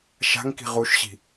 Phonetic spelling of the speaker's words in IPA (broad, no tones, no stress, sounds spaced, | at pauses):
ʃ a̤ ŋ k i̤ ʁ u ʃ ɕ i̤